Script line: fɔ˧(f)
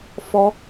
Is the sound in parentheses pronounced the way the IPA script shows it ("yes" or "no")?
no